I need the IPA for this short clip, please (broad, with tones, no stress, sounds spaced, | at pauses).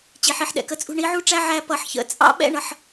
t͡ɕ i˨ ħ i˨ ħ ɗ ɛ̰˨ k ə˧ t͡sʼ ṳ˧ ɳ i˨˦ ʕ u˦ ʈ͡ʂ æ˦ ʕ æ˧ p ʌ˨ ħ ç ə̰˨ t͡sʼ ɑ̰˦ ɓ ɛ̰˦ ɳ ʌ˧ ħ